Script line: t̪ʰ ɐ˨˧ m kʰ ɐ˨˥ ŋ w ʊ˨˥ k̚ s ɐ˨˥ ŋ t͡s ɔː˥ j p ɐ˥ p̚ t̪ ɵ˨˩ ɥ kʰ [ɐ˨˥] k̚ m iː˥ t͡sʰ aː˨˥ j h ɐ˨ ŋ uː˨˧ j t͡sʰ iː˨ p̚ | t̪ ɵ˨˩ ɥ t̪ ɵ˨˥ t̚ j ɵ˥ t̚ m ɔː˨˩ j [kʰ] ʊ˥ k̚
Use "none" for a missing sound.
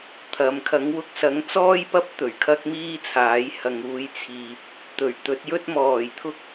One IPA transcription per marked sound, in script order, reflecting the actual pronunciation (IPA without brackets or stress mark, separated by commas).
ɐ˥, t̪ʰ